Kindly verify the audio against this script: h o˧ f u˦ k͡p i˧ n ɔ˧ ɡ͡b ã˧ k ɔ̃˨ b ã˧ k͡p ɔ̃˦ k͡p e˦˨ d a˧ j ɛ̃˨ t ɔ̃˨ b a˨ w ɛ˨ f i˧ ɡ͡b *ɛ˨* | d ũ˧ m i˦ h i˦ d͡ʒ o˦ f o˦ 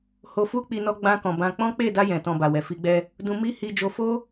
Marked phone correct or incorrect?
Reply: incorrect